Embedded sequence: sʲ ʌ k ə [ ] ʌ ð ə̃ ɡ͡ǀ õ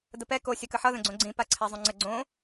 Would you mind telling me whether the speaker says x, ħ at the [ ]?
ħ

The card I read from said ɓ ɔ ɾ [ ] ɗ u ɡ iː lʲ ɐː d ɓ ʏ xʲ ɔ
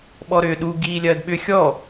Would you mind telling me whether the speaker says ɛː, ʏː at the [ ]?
ʏː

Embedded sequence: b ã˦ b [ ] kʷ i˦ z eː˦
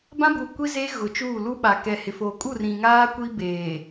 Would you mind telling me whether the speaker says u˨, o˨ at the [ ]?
u˨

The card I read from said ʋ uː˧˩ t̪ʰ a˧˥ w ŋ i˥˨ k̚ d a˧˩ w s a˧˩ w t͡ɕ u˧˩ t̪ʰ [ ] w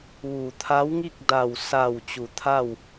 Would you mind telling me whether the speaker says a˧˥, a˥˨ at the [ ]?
a˥˨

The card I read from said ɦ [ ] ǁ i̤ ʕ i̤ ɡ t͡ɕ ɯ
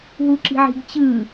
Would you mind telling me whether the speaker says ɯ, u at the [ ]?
u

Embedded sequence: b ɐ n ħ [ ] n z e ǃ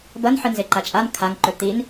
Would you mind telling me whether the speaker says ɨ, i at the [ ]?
ɨ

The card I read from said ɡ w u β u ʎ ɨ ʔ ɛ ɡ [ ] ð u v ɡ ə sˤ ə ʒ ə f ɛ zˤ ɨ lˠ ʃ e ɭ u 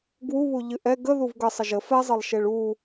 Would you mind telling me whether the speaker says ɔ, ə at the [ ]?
ə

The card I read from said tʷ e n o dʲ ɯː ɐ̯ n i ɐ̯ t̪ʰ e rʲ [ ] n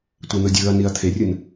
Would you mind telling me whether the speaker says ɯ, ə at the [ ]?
ɯ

